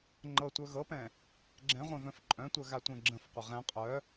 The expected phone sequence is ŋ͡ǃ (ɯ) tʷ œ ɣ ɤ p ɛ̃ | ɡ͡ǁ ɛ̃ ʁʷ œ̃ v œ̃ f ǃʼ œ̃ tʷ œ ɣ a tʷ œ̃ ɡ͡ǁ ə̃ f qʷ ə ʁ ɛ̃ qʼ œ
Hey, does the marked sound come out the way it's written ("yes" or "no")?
no